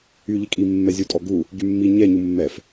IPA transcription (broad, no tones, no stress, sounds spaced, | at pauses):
y ʎ i kʼ i mː ɛ zʲ u tʼ ɔ ɡ u | ɟ y mː i ɲ ɛ ɲ u mː ɛ f